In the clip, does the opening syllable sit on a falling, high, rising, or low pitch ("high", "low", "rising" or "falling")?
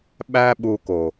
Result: high